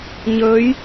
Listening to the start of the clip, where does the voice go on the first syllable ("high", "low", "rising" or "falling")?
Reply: rising